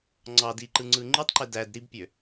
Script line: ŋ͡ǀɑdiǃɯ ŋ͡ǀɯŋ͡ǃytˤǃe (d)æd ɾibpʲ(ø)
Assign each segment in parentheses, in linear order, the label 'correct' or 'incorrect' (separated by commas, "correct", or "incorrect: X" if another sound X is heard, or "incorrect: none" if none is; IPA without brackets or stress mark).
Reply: correct, correct